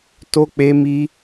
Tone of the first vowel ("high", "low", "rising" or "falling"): high